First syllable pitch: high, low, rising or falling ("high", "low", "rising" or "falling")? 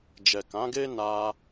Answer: low